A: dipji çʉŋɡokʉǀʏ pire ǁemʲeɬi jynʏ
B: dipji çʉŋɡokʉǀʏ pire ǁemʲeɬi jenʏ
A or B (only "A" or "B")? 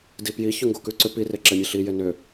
B